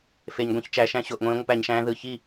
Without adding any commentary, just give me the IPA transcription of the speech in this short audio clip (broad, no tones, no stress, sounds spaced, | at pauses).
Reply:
f e ɲ ɡʷ ẽ ç t͡ʃ æ ʃ æ̃ ɕ o ʔ ŋʷ ẽː ŋʷ ɯ p æ ɲ ʃ æ̃ː ð ɯ ç i